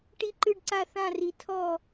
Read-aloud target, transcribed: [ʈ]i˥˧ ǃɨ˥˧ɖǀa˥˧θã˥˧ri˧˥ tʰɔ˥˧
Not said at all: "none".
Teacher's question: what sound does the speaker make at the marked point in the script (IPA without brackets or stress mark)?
ʈ